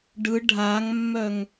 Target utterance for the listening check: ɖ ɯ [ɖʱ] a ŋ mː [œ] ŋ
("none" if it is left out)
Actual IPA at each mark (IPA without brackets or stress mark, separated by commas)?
ɖʱ, œ